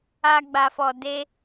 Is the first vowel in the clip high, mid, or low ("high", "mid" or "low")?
low